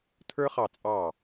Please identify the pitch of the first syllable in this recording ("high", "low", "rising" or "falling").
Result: high